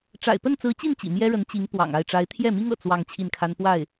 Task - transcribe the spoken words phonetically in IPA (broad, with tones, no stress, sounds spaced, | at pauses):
ʈ͡ʂ a̰˨˩ ɪ̯ p ə˥˩ n t͡s ɹ̩˧˥ t͡ɕ i˥˩ n t͡ɕ ḭ˨˩ m j ɛ˥ ɻ ə˧˥ n t͡ɕ i˧˥ ŋ p w ɑ̰˨˩ ŋ a˥˩ ɪ̯ ʈ͡ʂ a˧˥ ɪ̯ t̪ʰ j ɛ˥˩ m i˥ ŋ ɤ̰˨˩ t͡s w ɑ˥˧ ŋ t͡ɕʰ i˥˩ n kʰ a˥ n p w a˥˩ ɪ̯